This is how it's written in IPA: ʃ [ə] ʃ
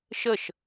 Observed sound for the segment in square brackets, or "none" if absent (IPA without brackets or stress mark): ə